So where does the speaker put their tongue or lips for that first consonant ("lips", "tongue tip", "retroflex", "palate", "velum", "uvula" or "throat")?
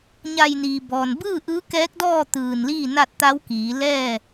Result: palate